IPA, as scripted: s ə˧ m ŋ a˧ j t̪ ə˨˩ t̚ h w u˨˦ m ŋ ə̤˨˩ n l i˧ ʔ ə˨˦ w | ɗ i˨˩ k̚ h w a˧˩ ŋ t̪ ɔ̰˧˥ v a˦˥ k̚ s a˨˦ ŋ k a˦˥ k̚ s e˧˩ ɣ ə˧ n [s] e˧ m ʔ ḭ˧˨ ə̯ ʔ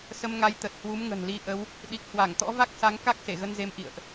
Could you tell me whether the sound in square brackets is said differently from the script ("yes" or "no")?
yes